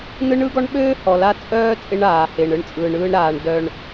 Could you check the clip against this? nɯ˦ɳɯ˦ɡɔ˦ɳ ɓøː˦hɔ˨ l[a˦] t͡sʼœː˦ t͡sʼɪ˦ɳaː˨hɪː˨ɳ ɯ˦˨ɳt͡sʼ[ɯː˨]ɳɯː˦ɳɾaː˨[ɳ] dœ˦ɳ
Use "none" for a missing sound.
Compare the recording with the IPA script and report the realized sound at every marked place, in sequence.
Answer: a˦, ɯː˨, ɳ

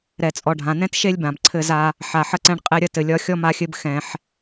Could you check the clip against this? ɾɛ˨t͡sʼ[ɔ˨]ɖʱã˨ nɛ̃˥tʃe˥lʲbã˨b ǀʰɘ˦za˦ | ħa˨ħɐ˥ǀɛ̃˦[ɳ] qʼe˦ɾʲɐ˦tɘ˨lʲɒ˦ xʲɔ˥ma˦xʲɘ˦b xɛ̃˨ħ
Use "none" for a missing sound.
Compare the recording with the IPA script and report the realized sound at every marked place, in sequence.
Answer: ɔ˨, ɳ

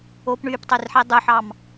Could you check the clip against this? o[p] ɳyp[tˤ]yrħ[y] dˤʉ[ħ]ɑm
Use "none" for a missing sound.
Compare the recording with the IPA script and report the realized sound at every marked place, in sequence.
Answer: p, tˤ, i, ħ

